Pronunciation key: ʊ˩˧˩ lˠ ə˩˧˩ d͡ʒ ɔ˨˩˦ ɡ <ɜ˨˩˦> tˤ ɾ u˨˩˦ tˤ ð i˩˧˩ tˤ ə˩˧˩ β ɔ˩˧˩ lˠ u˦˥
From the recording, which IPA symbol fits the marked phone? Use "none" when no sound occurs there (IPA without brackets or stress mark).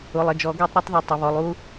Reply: ɜ˨˩˦